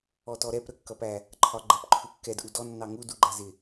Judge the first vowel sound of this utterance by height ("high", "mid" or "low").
mid